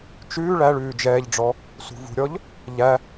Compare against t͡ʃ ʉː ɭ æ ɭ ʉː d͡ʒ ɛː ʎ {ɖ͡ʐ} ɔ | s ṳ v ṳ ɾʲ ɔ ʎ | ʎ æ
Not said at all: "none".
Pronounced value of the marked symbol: ɖ͡ʐ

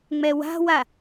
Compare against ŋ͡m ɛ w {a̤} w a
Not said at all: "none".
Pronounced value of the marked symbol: a̤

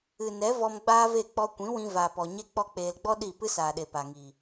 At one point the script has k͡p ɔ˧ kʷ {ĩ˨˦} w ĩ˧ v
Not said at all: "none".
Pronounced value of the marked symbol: ĩ˨˦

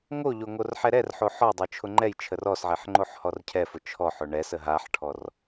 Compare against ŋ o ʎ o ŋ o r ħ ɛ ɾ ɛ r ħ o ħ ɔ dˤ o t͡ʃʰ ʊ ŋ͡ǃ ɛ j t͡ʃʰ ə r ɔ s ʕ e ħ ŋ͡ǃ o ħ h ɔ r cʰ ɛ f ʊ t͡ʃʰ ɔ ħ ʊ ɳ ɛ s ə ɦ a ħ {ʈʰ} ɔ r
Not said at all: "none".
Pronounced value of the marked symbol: ʈʰ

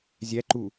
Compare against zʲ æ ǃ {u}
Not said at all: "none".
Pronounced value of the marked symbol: u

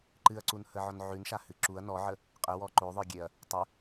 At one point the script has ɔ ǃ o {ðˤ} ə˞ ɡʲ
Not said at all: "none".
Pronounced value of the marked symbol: ðˤ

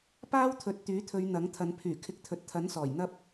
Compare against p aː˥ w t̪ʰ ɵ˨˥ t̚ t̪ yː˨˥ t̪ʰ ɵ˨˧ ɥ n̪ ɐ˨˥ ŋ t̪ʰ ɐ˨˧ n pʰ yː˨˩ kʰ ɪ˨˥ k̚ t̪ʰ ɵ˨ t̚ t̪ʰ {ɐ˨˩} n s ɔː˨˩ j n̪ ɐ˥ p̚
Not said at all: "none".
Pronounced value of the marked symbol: ɐ˨˥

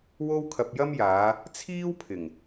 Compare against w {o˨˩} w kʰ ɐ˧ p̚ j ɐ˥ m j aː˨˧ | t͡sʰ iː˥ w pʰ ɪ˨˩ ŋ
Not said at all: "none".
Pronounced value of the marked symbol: o˥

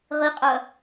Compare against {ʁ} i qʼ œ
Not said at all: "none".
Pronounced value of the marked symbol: ʁ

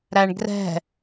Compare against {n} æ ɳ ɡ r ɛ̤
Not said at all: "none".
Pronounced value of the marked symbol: ɾ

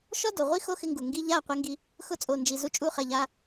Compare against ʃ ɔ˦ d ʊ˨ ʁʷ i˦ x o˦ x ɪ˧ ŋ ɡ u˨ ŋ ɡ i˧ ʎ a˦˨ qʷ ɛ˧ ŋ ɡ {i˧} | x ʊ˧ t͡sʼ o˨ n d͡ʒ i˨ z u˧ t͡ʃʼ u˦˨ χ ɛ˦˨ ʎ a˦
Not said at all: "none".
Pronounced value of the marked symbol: i˧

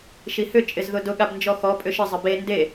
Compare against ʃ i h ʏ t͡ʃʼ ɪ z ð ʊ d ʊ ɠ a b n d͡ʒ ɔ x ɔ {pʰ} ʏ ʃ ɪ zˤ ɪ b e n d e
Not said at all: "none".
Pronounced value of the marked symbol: pʼ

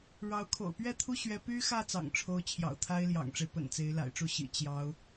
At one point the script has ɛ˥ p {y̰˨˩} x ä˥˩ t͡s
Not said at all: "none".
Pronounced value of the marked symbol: y˥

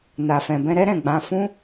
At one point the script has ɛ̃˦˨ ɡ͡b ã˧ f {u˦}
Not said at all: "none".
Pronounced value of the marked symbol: ũ˦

